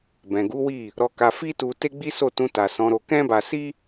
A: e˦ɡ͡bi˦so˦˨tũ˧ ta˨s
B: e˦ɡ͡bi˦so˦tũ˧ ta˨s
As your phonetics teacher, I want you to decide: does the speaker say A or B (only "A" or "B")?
A